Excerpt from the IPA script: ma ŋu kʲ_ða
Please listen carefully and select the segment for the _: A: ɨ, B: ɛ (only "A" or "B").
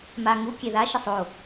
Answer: B